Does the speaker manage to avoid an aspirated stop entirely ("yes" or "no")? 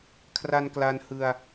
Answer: no